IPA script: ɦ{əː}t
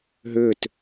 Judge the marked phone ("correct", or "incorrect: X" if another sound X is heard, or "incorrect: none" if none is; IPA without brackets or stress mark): incorrect: ʏː